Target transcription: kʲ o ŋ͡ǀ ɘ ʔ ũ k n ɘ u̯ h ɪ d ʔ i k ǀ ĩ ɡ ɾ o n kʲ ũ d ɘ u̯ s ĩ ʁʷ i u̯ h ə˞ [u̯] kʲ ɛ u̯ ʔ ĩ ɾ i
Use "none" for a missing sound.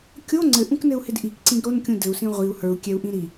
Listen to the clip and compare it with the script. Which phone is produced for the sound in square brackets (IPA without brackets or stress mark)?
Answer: u̯